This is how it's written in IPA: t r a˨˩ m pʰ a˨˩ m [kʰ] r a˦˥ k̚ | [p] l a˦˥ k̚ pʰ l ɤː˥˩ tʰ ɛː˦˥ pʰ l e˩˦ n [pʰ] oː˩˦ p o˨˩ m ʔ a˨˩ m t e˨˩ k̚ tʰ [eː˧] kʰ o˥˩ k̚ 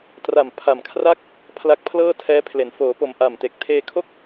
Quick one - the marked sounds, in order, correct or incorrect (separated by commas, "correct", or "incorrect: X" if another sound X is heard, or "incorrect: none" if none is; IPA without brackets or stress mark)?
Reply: correct, incorrect: pʰ, incorrect: f, correct